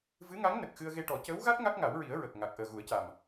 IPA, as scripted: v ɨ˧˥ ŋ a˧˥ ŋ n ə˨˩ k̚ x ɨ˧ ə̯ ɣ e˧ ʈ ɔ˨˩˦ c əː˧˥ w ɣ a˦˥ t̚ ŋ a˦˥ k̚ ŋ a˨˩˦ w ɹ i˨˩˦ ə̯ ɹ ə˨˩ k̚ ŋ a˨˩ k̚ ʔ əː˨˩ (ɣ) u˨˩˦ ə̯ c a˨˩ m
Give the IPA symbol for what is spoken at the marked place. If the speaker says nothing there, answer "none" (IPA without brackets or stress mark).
ɣ